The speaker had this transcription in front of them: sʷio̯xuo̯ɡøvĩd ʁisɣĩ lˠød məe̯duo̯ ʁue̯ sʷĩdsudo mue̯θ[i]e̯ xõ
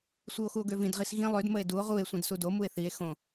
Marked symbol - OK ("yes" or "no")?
yes